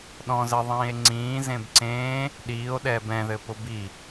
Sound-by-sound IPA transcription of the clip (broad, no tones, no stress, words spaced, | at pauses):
ɗɔ̃zɘðˤĩːe̯ ŋ͡ǀĩːzẽb ǀẽː | ɗiːo̯ɗɛːb ɛ̃ðɘpʊ bi